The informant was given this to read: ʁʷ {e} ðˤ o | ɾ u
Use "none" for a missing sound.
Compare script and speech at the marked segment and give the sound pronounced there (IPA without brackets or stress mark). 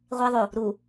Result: e